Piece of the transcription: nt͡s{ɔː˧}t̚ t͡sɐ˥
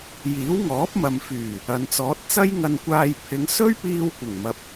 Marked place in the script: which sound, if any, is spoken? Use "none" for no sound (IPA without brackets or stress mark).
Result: ɔː˨˥